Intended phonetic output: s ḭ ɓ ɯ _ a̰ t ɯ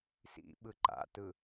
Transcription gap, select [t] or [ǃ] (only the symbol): ǃ